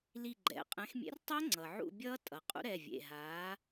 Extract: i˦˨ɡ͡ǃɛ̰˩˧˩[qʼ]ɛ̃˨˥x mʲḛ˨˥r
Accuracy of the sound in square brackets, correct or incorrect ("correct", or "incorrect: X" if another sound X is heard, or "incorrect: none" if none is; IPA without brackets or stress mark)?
correct